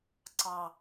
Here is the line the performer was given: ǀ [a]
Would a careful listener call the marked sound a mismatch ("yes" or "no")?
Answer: yes